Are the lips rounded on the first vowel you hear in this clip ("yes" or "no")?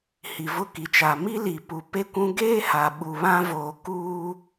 no